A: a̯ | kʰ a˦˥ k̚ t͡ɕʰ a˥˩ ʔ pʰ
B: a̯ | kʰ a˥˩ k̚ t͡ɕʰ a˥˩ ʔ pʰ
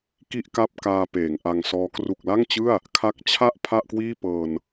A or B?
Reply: A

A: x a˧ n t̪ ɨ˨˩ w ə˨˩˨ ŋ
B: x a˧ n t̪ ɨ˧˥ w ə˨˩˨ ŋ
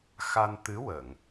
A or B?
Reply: B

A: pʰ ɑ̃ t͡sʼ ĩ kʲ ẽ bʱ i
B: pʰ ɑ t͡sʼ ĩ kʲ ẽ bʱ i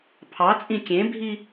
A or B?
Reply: B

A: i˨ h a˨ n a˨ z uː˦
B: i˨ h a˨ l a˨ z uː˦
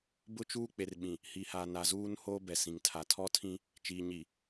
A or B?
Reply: A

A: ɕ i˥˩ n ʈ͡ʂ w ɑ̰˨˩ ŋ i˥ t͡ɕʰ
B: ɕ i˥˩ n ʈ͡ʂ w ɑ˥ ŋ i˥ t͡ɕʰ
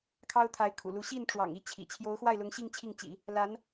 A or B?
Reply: A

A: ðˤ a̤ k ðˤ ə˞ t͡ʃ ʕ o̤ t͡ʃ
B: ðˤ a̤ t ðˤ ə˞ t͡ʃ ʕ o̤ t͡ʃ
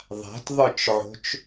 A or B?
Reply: B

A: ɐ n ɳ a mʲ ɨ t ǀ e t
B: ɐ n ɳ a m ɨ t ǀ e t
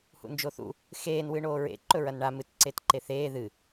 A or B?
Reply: B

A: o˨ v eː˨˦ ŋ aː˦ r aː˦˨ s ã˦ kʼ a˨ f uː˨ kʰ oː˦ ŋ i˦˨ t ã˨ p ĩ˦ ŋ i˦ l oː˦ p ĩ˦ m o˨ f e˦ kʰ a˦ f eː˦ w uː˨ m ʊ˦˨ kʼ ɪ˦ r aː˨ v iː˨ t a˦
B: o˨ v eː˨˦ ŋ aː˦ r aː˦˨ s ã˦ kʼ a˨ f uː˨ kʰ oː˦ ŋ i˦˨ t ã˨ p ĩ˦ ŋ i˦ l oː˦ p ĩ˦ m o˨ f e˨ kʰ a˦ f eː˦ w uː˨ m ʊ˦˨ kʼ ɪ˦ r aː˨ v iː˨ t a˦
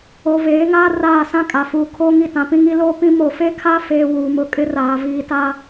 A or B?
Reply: A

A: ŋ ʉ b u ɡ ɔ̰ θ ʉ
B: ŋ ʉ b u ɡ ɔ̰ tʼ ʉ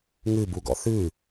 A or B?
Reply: A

